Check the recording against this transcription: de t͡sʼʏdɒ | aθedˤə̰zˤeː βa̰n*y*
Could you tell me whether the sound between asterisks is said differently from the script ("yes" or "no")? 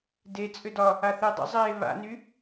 no